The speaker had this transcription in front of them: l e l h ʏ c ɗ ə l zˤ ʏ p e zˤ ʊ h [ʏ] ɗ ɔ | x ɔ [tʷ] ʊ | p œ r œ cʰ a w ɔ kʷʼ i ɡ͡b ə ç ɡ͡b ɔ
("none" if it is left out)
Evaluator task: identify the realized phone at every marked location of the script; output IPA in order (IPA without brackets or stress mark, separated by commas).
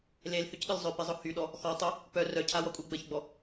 y, tˤ